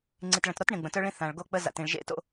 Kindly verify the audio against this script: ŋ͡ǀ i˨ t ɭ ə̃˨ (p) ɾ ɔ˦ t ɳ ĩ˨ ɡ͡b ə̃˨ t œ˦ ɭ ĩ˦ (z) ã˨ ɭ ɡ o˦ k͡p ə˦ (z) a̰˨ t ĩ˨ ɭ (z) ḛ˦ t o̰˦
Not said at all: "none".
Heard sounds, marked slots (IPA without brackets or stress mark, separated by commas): t, θ, z, ʒ